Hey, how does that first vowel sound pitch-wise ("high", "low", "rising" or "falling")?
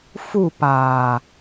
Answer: falling